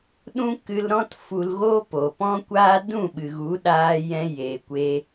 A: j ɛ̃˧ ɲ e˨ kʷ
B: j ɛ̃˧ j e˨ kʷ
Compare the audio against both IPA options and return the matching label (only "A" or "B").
B